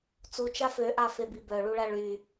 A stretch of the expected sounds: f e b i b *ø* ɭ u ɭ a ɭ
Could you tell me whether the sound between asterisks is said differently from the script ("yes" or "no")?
yes